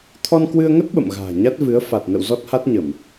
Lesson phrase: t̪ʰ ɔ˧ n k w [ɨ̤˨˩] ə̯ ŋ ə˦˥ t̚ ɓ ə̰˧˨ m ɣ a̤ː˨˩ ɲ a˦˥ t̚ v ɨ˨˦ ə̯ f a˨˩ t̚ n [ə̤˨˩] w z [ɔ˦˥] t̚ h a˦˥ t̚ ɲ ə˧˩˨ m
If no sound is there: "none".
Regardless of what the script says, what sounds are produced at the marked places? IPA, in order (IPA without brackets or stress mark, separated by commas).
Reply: ɨ˧, ə̰˧˨, ɔ˦˥